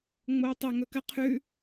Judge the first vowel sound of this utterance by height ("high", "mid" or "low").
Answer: mid